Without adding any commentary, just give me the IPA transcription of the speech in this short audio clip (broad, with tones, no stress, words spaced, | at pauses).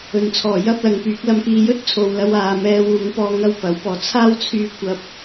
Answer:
ɵ˨nt͡sʰɔː˨˩jɐ˥p̚ lɐ˨˧ŋpyː˨˥k̚ lɐ˧mkiː˧ jɵ˥t̚t͡sʰo˨wlɐ˧w aː˨mɛː˧wuː˨˧ŋpɔː˧ ŋɐ˥wpɐ˨˥w pɔː˨˩t͡sʰaː˥wt͡sʰyː˧kʷɐ˧p̚